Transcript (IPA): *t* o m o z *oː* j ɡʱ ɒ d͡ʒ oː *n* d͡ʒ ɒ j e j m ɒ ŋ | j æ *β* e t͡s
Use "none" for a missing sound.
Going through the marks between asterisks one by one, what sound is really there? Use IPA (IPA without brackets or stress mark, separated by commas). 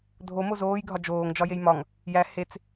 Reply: dʱ, oː, ŋ, h